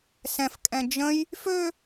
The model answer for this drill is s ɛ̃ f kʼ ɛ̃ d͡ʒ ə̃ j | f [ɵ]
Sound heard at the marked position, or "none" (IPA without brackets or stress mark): ø